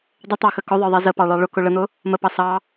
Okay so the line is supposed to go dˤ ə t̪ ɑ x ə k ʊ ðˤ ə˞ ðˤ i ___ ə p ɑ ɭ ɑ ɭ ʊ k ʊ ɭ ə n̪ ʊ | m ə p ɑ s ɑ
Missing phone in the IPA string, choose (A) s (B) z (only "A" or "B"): B